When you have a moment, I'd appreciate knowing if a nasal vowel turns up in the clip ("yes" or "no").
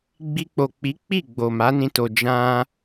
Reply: yes